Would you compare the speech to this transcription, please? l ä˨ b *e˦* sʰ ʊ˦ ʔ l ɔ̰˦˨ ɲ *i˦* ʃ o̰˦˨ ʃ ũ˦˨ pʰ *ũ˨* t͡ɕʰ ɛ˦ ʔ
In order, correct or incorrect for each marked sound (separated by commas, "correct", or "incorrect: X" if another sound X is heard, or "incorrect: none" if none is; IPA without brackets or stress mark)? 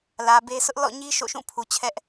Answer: correct, correct, incorrect: u˨